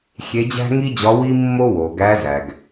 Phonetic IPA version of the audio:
xʲ e˧˥ d͡ʑ æ̤˥ ŋ i˥ d͡ʑ ɒ˧˥ w i˥ mː o˥ w o˩ ɡ æ˧˥ z æ˩ ɡ

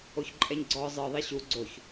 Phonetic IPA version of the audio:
o ç ǃʼ ɛ ɲ ɡ͡ǀ ɔ zˤ ɯ ðˤ i ɕ u ɡ͡ǀ o ç

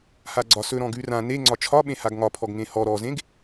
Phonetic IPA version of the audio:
h a ɡ͡ǀ ɒ s ɵ ɾ ɔ̃ ɡ ʉ r ã n e ŋ͡ǀ ɒ t͡ʃʰ ɒ ɓ ẽ h a ɡ ŋ ɒ pʰ ɔ ɡ ŋ ẽ h ɔ ɾ ɔ z ẽ ɡ

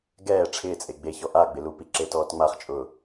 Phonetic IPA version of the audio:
ɡ ɛː ʈ͡ʂʰ ɪː t͡sʼ e ɡ͡b e ç ɔ ʔ a ɡ͡b ɪ l u p i ǁ e t ɔː t ŋ͡m a χ t͡ʃʼ ʊː

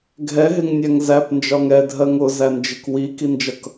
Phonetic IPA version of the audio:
ɡʱ ɛ ɦ ɪ ŋ nʲ æ ŋ z æ p n d͡ʒ ɒ ŋ ɛ dʱ ɜ ŋ ʊ z æ n d͡ʒ ɪ k w i k i n d͡ʒ ʌ k

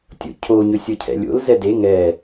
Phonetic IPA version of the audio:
tʲ o̰ cʰ o ɲ ɵ sʲ ɤ cʰ ɛ̰ lʲ o̰ l z ɛ d e ŋ ɛ

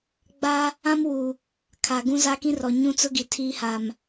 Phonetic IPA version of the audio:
ɡ͡b a˦ | ã˦ m w u˨ | kʰ a˨ ɡ ũ˦ z a˦ k ĩ˦ r ɔ˨ ɲ ũ˦ t͡s ʊ˦ ɡ i˨ tʰ iː˦ h a˨ m

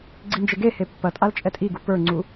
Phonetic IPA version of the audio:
ɡ͡ǀ i n d͡ʒ e ɡ e h e pː ɐ tʼ a l t͡ʃʼ ɛ tʼ i ɡ u p ə˞ ŋ͡ǀ u

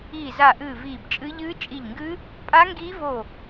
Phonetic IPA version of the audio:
iː˧˩ z a˧˩ ʔ ɨː˧˩ v iː˧˩ b t͡ʃʼ ɨ˦˥ ʎ ɨː˦˥ t͡ʃʼ i˧˩ ʎ ŋ ɡ ɨː˦˥ | pʼ a˦˥ ŋ ɡ iː˦˥ v oː˧˩

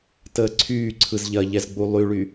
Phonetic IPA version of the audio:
t əː ǀʰ yː ǀʰ ɯ z ʎ ɐ ʎ ɛ z ɡ͡b u lˠ y ɭ y

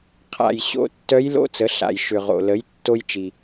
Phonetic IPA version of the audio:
qʰ a̰˩ j ɕ o̰˧˥ tː œ˧˥ j l o̰˧˥ t͡s ə˩˧ ɬ a̰˩ j ʃ ʏ˩ ʁ o̰˩ l ə˩˧ j tː o˧ j t͡ʃ i˩

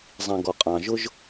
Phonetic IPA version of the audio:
zˤ ĩ˨ ɡ ɔ˨ qʼ ɑ̃˨ ʒ ʊ˦ ʒ

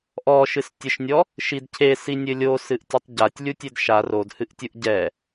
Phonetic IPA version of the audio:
ʔ ɔ ʃ ɨ s tʲ ɘ ʃ nʲ ɔ | ʃ i d cʰ e s i nʲ ɘ lʲ o s ɨ ʔ tʲ ɨ tˤ ɟ a tʲ lʲ u tʲ e d ʃ a r o d h ɨ ʔ tʲ u ʔ ɟ ɛ

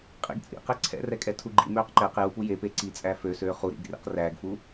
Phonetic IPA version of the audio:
qʼ ḭ ɡ t͡sʼ ḭ q ɛ ǀʰ ɛ̰ r ɛ kʼ ɛ tʰ u ɡ͡ǃ ḭ m øː q ǃ ɛ q j u p u j e p e ǀ i t͡sʼ æ f ø s øː χ u ɾ ḭ ɡ r ḭ q r æː ɡ f u

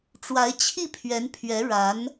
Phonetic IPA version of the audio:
ʈ͡ʂ w a˧˥ ɪ̯ t͡ɕʰ i˥˩ pʰ ɥ ɛ˧˥ n pʰ ɥ ɛ˧˥ ɻ a˧˥ n

